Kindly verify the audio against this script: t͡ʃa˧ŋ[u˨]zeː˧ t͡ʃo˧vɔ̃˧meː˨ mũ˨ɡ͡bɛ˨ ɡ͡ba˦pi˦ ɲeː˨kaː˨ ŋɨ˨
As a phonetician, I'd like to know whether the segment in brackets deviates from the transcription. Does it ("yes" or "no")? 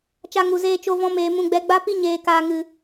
no